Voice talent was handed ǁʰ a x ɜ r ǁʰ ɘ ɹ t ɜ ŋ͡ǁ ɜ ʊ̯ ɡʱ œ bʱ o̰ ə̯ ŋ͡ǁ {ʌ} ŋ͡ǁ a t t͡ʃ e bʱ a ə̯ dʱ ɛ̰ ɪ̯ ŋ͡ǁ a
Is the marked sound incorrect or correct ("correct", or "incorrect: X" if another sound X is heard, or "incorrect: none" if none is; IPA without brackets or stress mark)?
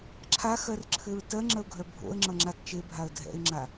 correct